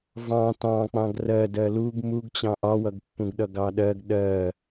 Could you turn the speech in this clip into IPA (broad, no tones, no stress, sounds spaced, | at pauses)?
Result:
v ɑ̃ t ɑ̃ k͡p ɑ̃ ɡ r ɜ d ɜ l u ɡ m u ɡ t͡ɕ ɑ̃ ʔ ɒ w ʌ ɡ pː ũ ɡ ɗ ʌ ɡ ɑ ɗ ɜ ɡ ɗ ɜ